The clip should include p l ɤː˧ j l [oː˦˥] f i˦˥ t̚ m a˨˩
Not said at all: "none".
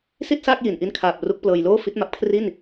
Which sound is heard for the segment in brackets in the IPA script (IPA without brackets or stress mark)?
oː˥˩